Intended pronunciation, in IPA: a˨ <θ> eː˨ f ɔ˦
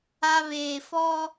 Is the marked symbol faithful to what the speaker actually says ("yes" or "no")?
no